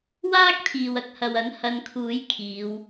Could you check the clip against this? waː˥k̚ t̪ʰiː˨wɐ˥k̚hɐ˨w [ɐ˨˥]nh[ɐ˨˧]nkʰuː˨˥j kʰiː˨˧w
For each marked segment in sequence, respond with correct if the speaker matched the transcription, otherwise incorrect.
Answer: correct, correct

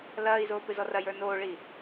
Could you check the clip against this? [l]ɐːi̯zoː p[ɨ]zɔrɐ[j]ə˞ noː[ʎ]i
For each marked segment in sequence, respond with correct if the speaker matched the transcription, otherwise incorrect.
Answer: correct, correct, correct, incorrect: ɭ

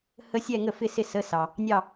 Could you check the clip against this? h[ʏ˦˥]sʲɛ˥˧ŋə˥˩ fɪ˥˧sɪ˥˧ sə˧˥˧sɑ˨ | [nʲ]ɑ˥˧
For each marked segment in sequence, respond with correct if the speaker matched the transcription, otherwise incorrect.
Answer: incorrect: ə˦˥, correct

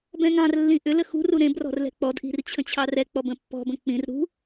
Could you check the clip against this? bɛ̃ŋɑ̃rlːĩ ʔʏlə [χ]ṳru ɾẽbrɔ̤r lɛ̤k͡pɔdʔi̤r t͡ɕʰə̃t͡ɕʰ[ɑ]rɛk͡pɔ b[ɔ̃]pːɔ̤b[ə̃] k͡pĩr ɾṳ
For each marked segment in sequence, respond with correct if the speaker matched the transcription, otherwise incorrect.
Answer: incorrect: x, correct, incorrect: ə̃, correct

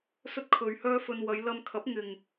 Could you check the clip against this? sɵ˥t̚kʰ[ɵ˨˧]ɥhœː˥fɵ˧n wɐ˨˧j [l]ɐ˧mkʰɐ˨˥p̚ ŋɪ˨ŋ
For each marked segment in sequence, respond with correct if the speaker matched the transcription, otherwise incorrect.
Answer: correct, correct

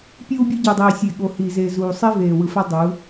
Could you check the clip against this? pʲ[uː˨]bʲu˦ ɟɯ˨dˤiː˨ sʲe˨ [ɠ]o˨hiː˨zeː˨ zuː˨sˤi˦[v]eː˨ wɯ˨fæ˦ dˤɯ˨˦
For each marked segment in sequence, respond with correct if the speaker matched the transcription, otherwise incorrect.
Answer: incorrect: uː˦, correct, correct

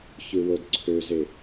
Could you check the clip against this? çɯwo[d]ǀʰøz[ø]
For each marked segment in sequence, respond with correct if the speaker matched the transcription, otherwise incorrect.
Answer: correct, incorrect: e

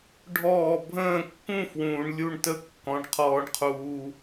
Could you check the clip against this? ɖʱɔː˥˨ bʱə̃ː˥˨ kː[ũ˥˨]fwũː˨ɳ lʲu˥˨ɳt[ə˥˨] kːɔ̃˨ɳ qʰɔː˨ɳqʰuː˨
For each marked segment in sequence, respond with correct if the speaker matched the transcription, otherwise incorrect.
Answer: correct, correct

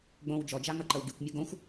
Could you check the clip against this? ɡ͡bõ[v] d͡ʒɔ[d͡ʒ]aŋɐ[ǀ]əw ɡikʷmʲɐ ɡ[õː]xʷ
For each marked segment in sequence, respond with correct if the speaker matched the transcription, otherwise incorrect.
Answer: incorrect: w, correct, incorrect: ǃ, incorrect: õ

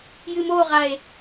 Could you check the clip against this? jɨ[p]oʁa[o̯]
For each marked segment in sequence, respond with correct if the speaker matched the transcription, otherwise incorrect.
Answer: incorrect: m, incorrect: e̯

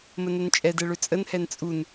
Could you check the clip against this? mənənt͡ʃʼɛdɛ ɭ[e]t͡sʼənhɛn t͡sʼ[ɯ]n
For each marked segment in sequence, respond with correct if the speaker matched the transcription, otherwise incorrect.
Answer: incorrect: ø, incorrect: u

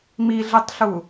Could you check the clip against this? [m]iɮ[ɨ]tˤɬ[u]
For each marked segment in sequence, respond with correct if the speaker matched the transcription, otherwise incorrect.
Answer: correct, correct, correct

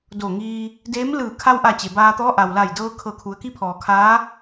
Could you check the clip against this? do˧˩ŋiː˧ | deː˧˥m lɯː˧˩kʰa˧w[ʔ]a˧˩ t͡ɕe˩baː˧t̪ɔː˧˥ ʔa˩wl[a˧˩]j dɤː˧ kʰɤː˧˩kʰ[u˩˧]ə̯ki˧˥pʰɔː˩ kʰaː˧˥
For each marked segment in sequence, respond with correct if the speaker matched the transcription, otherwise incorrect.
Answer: correct, correct, correct

